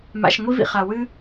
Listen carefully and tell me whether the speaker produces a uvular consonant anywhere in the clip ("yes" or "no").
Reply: yes